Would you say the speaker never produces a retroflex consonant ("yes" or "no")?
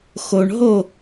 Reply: no